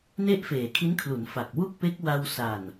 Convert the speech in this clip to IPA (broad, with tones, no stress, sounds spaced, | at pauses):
n e˥˩ ʔ f eː˨˩ kʰ i˦˥ n kʰ l u˩˦ n f a˨˩ k̚ w u˥˩ k̚ p e˦˥ k̚ w a˧ w s a˨˩ n